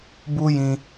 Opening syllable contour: high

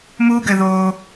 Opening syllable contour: high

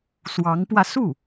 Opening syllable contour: rising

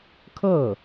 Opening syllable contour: falling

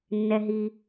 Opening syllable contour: low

